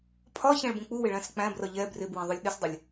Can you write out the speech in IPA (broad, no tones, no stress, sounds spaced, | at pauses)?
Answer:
pʰ ɒ ç æ̃ ɭ b ũ k͡p u w ɪ ɭ æ̃ s k͡p æ̃ b r ʌ ʎ ɛ b r ɪ b w ɛ̃ ðˤ ʊ lʲ ɗ ɪ s dˤ ɪ lʲ